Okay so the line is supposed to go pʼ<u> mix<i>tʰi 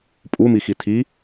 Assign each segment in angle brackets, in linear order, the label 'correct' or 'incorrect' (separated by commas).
correct, correct